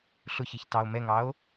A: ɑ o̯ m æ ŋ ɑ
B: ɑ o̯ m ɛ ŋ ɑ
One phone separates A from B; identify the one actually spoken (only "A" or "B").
B